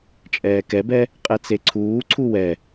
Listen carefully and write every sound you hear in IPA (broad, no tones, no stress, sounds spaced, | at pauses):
t͡ʃʼ ɛː k ɛ b ɛ | qʼ ɛ t͡s e ǀʰ uː ǀʰ u w ɛ